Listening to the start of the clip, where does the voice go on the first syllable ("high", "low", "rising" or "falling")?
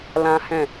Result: high